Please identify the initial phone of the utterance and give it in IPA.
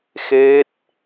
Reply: x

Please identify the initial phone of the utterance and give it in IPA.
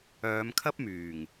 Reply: œː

